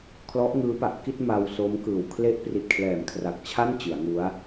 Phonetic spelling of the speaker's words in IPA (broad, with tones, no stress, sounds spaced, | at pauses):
kʰ l ɔ˦˥ ʔ ŋ ɯː˦˥ p a˨˩ ʔ k i˥˩ t̚ m a˧ w s o˦˥ m k ɯː˨˩ w kʰ l e˦˥ ʔ p r i˨˩ t̚ kʰ l ɛː˨˩ m kʰ r a˨˩ k̚ t͡ɕʰ a˥˩ n t͡ɕ ɯ˩˦ a̯ ŋ u˦˥ a̯